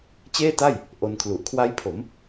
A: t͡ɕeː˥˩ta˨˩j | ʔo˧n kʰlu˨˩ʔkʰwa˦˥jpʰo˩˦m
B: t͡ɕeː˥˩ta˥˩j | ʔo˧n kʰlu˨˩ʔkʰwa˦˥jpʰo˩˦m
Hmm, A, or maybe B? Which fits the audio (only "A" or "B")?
B